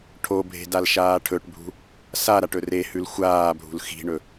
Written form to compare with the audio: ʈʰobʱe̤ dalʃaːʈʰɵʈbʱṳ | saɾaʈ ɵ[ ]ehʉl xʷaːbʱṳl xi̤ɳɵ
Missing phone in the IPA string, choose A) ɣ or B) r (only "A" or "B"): B